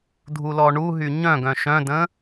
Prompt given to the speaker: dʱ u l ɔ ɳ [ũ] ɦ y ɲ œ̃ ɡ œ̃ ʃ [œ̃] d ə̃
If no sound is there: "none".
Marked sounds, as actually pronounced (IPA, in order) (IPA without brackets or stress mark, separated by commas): u, œ̃